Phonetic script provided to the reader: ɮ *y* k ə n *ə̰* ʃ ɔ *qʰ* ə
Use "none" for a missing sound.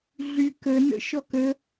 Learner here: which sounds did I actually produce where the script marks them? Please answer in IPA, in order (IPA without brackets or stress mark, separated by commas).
y, ə̰, k